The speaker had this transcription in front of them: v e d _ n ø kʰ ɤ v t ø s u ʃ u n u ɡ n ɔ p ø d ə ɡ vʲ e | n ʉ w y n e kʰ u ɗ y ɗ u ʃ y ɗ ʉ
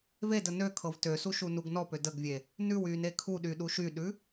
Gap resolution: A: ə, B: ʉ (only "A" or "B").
A